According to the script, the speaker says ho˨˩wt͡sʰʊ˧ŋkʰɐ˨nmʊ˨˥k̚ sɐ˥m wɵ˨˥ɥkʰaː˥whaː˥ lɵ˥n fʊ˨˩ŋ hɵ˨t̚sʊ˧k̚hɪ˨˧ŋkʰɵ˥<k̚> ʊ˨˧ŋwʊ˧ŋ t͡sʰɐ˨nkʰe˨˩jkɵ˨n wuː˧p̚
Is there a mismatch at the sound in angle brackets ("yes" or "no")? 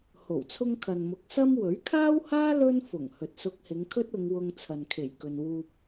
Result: yes